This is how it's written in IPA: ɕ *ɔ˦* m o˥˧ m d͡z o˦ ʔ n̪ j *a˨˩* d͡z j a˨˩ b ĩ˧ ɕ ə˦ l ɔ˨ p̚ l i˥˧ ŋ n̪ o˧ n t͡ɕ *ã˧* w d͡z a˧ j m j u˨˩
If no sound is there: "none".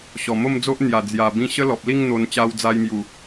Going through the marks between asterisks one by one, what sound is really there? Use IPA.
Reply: ɔ˨˩, a˨˩, a˧

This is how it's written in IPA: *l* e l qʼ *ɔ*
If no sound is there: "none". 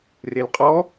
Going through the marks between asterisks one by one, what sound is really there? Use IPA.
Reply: r, ɔ

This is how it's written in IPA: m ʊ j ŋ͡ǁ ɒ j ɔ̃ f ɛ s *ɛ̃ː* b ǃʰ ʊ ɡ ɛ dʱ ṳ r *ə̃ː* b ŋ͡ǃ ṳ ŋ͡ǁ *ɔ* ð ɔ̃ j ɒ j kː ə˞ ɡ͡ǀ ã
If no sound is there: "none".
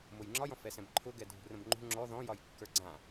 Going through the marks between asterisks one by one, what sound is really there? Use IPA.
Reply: ɛ̃, ə̃, ɔ

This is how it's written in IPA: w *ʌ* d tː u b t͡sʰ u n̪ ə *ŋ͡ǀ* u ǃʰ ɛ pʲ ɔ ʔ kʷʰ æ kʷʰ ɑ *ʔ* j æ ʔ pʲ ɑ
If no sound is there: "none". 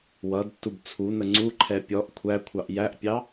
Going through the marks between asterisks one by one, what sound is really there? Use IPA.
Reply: ʌ, ŋ͡ǀ, ʔ

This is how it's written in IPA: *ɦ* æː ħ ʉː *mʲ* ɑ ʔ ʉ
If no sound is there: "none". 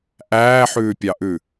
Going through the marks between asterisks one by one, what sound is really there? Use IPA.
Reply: ʔ, pʲ

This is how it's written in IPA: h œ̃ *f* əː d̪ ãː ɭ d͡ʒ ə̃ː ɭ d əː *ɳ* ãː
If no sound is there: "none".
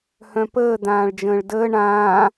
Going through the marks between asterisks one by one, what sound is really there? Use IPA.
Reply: p, ɳ

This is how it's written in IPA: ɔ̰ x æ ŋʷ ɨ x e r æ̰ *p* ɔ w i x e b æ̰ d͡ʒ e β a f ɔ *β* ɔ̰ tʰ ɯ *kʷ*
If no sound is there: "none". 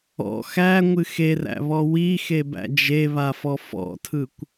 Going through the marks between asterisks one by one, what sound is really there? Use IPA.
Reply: β, f, kʷ

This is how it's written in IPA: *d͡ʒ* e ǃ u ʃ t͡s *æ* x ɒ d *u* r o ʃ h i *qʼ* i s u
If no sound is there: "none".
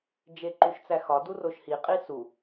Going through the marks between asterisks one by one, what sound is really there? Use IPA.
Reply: d͡ʒ, æ, u, qʼ

